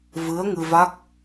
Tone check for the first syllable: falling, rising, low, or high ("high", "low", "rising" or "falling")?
rising